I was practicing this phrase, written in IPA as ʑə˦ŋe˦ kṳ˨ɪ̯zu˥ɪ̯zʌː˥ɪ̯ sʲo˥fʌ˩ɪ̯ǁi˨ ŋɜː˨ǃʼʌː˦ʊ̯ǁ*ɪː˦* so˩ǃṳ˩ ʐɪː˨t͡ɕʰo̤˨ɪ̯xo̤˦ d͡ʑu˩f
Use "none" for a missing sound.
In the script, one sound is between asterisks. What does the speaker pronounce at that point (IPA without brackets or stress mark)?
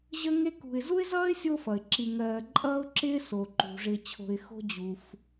ɪː˦